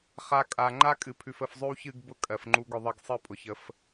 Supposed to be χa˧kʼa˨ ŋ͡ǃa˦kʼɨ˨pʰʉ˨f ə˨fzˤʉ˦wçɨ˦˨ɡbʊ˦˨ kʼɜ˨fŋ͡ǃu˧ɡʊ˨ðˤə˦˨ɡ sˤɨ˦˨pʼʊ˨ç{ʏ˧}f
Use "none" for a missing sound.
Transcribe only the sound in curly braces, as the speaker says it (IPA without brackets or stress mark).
ə˧